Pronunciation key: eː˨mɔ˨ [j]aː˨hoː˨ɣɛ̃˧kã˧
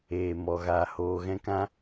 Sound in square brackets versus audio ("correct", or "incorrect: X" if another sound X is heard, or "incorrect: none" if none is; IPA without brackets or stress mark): incorrect: ɣ